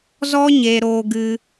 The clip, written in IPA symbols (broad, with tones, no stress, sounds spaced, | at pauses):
z ɔ˦ ɲ e˧ ɾ oː˧ ɡ ɨ˧